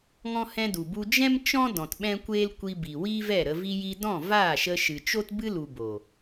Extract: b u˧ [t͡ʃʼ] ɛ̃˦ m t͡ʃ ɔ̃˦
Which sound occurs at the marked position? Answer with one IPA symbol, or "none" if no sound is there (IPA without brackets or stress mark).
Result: d͡ʒ